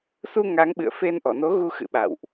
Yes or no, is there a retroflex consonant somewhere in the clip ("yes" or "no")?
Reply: no